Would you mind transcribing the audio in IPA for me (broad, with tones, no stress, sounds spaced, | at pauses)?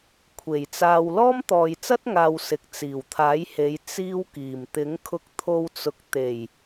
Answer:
kʷʰ e˨˩ j t͡s aː˧ w l ɔː˥ m t̪ ɔː˨ j t͡s ɐ˥ t̚ ŋ aː˨ w s ɪ˨ k̚ t͡s iː˨˩ w t̪ʰ aː˨˥ j h e˨˧ j t͡s iː˥ w k iː˨˩ m t̪ ɪ˨˥ ŋ kʰ ʊ˧ k̚ t̪ʰ o˧ w t͡s ʊ˨ k̚ t̪ e˨˩ j